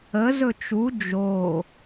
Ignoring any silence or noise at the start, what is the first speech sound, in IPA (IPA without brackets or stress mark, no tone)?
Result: ə